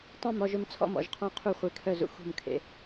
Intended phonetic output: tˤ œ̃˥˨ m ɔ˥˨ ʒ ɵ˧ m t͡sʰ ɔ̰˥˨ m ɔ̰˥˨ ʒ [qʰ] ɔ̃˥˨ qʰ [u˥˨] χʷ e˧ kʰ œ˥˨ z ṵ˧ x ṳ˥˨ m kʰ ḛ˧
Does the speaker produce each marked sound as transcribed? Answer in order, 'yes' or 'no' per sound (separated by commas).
yes, yes